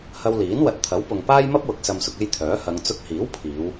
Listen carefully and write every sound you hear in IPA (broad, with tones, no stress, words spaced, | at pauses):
hɐ˧wliː˨˥n wɐ˨t̚t̪ʰɐ˨˥wpʊ˨ŋ paː˥jmɐ˥p̚wʊ˨˥k̚ sɐ˧msʊ˧k̚e˥jt̪ʰœː˨˥ hɐ˨˧ŋ t͡sʊ˧k̚hiː˨˥wpʰiː˨˧w